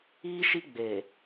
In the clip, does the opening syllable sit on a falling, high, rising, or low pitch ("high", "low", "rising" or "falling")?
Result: high